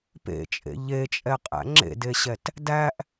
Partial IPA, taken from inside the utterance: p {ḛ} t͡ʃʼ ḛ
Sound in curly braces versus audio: correct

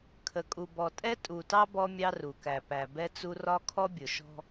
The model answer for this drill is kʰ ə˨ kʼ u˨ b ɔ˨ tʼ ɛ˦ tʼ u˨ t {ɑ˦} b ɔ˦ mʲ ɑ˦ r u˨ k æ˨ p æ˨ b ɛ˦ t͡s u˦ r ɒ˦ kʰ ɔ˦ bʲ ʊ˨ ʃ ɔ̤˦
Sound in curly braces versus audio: correct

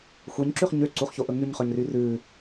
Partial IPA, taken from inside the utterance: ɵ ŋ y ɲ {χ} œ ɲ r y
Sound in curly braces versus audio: correct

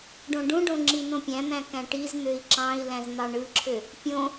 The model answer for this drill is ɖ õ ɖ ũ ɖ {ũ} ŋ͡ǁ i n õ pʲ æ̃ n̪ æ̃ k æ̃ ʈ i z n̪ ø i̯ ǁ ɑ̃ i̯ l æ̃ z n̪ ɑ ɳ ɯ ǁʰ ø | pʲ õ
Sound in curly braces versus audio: incorrect: õ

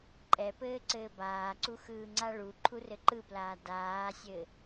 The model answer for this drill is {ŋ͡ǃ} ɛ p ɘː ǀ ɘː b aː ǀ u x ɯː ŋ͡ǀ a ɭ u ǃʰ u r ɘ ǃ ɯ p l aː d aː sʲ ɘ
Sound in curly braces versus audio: incorrect: ǃʼ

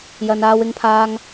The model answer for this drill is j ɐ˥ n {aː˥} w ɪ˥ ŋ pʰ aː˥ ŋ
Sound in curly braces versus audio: correct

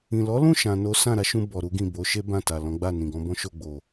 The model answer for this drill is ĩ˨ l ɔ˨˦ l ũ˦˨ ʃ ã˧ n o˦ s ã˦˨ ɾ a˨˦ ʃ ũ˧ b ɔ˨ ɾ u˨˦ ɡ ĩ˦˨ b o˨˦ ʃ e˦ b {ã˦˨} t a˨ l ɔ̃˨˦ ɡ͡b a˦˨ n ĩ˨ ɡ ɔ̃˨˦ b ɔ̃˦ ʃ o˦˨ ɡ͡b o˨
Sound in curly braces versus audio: correct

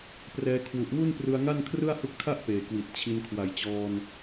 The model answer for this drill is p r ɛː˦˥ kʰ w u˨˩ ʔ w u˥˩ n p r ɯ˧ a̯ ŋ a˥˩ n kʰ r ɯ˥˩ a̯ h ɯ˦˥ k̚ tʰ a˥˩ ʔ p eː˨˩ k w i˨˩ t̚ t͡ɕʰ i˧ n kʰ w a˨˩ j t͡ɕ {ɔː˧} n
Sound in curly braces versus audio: correct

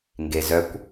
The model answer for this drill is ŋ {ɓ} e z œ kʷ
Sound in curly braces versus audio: incorrect: ɡ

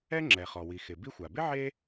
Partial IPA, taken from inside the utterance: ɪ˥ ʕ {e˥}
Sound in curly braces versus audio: correct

